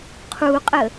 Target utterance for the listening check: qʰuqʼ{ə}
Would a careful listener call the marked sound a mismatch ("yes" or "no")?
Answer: no